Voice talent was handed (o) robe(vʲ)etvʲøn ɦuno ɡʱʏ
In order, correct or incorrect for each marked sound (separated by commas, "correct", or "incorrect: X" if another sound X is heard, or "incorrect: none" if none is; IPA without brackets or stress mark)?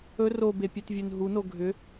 incorrect: ɵ, incorrect: pʲ